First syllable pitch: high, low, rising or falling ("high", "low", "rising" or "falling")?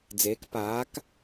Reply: rising